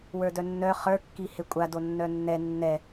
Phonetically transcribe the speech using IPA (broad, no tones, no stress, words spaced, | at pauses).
wə˞dœnːœ χə˞kːi hekʷʼado nːœnːɛ nːɛ